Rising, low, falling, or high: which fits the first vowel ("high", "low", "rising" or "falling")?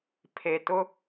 low